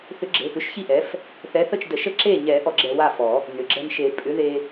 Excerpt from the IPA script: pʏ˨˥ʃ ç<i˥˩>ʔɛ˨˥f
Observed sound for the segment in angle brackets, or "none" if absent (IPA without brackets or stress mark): i˥˩